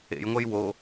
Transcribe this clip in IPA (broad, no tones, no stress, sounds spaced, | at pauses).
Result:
ḛ j ŋʷ ɛ j w o